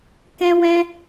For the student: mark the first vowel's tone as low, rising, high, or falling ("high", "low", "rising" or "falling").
high